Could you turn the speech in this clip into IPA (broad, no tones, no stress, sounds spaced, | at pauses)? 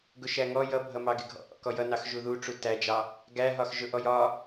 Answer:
ɡ ʊ ʃ æ ŋ ɔ j ʌ bʱ ʌ m ɑ ɡ ɪ ɡʱ ɔ̰ ʔ ɔ̰ k ɔ j ʌ n ɑ x ʒ u ð u ʈ͡ʂ u t æ d͡ʒ ɑ | ɡ æ ɦ ɒ x ʒ ʊ ʔ ɔ j ɒ